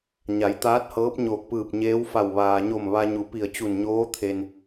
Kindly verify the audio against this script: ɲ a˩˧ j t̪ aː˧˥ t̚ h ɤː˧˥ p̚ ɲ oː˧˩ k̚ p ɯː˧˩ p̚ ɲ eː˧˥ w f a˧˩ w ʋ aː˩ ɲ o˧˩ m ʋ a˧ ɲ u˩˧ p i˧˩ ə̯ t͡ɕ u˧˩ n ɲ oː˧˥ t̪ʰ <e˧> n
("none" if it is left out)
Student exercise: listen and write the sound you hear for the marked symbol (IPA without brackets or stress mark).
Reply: e˩